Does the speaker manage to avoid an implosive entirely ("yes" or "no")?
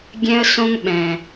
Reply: no